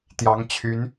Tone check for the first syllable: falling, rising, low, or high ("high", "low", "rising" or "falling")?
rising